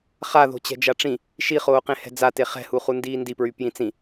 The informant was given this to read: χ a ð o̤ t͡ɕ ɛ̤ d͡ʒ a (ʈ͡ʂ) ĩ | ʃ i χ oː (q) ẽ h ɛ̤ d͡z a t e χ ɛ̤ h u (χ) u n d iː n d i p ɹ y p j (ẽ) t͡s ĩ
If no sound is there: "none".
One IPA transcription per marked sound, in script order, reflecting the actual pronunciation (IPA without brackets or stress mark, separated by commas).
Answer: ʈ͡ʂ, q, χ, ĩ